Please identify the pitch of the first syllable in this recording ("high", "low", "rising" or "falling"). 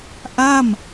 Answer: falling